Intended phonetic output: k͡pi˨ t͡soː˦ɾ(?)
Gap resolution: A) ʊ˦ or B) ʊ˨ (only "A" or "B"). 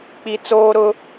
A